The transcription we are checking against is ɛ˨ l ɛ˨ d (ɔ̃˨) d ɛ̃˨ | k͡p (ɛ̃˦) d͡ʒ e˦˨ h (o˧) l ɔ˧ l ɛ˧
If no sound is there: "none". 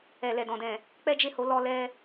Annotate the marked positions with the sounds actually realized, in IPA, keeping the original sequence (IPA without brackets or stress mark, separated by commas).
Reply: ɔ̃˨, ɛ˦, o˨˦